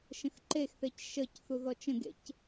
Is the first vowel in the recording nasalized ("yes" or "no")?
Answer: yes